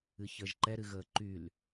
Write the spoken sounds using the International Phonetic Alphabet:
ɨ ç əː ʒ ǃ ɛ ɾ ɨ ɣ əː ǃ y l

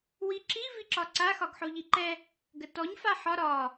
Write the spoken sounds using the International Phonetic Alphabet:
w i ǁ i v i ǁ ɒ ǀ a x ɒ ɡ ħ o ʎ i ǃ ɛ | ɡ ə t ɔ ɲ f a ħ ɒ ɾ ɒ

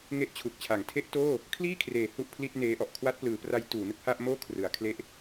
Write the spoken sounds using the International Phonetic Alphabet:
ŋ e˦˥ ʔ t͡ɕʰ u˨˩ k̚ t͡ɕʰ a˩˦ ŋ tʰ e˦˥ ʔ t oː˥˩ | kʰ l iː˥˩ kʰ r eː˩˦ h u˥˩ ʔ pʰ l i˥˩ t̚ n eː˦˥ ʔ ɔ˨˩ ʔ kʰ w a˦˥ t̚ p l ɯː˩˦ p r a˦˥ j t uː˩˦ n ɯ˥˩ k̚ h a˥˩ ʔ m oː˥˩ kʰ r ɯ˩˦ a̯ kʰ l e˦˥ ʔ

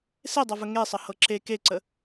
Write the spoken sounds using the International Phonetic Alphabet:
s e dˤ ɤ v ə ŋ e sˤ ə h ɤ ǁ e k e ǀ ə

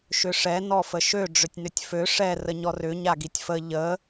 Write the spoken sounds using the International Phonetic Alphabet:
ʃ ʏ ʂ ɛ n ɔ f ə ʃ ø ɖ͡ʐ ʏ tʲ n ʏ tʲ f ø ʂ ɛ r ə ɲ ɔ r ʏ ɲ a ɡ i tʲ f ə ʎ ə

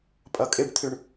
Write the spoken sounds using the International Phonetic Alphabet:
pʼ ɐ kʼ ɪ ɖ t̪ʰ ʏ ɳ

